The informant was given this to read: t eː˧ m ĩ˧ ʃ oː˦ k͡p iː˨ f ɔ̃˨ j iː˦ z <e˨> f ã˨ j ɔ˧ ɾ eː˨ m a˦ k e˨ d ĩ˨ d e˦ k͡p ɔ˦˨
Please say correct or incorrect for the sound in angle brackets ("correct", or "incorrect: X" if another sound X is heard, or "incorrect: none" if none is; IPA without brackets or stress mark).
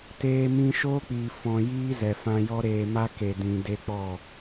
incorrect: ɛ˨